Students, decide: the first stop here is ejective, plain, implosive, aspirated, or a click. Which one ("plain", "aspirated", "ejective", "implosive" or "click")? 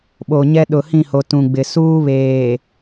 implosive